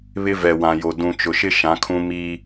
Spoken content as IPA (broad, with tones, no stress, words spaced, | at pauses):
βɪ˦vɛ˨wã˨jo˨ dũ˨t͡ʃʊ˨ʃɪ˦ ʃã˨˦kʰũ˦ mi˦